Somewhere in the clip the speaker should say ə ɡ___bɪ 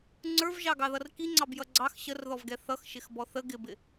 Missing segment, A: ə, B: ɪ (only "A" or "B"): B